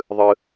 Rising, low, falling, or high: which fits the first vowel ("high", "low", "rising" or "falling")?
high